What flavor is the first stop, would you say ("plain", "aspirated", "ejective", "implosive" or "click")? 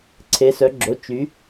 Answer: click